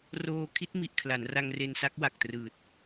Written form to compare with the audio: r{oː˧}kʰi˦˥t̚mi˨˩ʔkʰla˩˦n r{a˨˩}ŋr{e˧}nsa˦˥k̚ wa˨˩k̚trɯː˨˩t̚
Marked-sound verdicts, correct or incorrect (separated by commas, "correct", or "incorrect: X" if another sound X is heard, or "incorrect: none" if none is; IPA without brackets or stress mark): correct, incorrect: a˧, correct